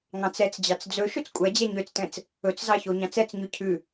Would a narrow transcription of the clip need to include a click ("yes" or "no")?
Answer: no